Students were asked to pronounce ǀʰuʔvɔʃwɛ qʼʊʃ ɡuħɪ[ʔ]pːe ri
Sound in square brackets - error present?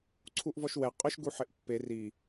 no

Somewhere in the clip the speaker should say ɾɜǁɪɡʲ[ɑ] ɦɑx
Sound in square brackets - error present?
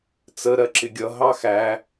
yes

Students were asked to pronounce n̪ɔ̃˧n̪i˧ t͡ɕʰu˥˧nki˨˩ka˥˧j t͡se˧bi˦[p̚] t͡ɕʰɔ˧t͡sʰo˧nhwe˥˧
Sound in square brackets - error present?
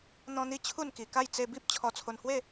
no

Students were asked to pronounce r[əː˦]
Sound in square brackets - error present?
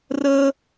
no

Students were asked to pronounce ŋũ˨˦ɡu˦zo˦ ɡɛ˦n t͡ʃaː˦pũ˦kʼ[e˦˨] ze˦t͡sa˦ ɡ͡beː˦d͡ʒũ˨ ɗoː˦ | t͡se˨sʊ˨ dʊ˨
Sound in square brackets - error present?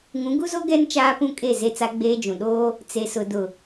no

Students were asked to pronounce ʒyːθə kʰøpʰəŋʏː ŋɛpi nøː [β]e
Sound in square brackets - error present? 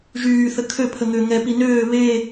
no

